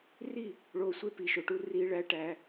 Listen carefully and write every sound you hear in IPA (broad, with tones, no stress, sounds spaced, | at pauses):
r i˦˨ | ɭ oː˧ sʷ e˦ p i˨ ʃ o˨ ʈ u˧ r iː˧ ɭ æ˧ ʈ æ˧